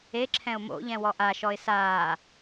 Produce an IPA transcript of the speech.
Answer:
e ǁʰ ɛ̃ ʊ̯ m o̰ ʎ ɛ̃ w ɔ ʔ a ʃ ɔ ɪ̯ s aː

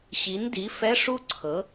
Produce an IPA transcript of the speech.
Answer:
ɕ i˩˥ n d i˩˥ f ɛ˧˥˧ ʂ u˥˧ ǀʰ ɤ˩˥

